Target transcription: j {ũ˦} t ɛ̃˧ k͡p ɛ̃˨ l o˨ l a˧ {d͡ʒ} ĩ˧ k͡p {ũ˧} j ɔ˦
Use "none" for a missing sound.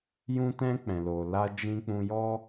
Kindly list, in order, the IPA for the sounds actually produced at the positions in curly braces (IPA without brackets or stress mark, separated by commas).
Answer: ũ˧, d͡ʒ, ũ˧